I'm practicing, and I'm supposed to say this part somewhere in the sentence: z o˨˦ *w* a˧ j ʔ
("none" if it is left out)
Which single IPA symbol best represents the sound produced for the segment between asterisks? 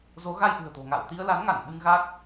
ɣ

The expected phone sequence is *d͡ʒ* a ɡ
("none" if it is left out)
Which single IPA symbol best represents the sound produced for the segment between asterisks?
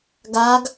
ɡ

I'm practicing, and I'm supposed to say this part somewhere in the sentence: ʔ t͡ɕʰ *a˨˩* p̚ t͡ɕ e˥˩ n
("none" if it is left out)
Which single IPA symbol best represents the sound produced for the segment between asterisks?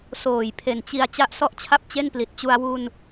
a˥˩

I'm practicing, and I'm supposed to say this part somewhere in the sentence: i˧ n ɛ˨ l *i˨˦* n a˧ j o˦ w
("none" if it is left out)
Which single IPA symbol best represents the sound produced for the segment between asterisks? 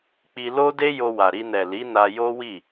i˨˦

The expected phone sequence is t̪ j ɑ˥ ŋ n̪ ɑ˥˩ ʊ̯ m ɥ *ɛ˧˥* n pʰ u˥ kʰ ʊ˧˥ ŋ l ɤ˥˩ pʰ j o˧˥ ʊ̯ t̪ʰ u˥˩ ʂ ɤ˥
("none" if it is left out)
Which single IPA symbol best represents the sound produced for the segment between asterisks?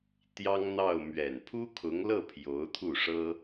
ɛ˨˩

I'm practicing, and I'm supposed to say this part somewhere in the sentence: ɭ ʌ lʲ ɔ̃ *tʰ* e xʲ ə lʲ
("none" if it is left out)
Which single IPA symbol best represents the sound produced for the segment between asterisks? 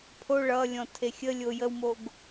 tʰ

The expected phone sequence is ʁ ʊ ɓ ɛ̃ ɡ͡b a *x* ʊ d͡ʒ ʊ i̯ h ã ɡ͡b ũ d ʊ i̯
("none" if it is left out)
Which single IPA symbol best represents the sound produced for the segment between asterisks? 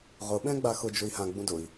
x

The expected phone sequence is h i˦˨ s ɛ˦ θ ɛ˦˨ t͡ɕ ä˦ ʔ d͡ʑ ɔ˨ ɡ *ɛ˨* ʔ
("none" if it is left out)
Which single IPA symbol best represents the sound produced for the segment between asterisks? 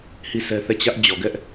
ɛ˦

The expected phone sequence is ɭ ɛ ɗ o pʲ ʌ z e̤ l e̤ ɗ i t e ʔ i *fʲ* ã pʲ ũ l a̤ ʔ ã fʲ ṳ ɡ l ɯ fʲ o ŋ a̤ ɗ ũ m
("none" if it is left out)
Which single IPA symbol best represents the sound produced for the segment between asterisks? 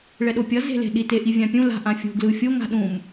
vʲ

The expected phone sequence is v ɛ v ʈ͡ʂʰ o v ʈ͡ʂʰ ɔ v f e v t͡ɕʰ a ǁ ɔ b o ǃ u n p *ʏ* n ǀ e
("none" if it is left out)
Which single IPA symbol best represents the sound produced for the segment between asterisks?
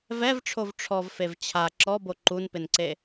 ɪ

